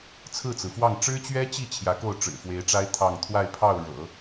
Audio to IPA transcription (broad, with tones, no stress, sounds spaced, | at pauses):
t͡sʰ ɹ̩˥˩ t͡s ɹ̩˩ f w ɑ˥˩ ŋ ʈ͡ʂ ɻ̩˥ t͡ɕ ɥ ɛ˥ t͡ɕ i˥˩ t͡ɕʰ j ä˧˥ k o˥˩ ʊ̯ ʈ͡ʂ ɻ̩˨˩ f w e˧˥ ɪ̯ ʈ͡ʂ a˥ ɪ̯ t̪ʰ ɑ˥˧ ŋ t̪ʰ w a˥˧ ɪ̯ pʰ ɑ˥˩ ʊ̯ ɻ ɤ̰˨˩˦